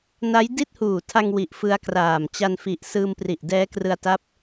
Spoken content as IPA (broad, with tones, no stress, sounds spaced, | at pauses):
n a˦˥ j d i˥˩ t̚ h uː˨˩ tʰ a˧ ŋ w i˨˩ ʔ f ɯ˦˥ a̯ k r aː˨˩ m t͡ɕ a˧ n f i˨˩ ʔ s ɯː˧ m p r i˨˩ ʔ d ɛː˦˥ k r ɯ˧ a̯ t a˦˥ p̚